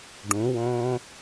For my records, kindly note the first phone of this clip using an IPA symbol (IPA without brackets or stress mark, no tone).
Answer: ɖ